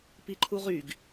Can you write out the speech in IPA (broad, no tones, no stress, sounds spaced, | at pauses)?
p i ǃʰ u ʁ y ɡ